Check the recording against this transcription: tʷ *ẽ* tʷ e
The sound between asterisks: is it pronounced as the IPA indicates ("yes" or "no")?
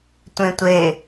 yes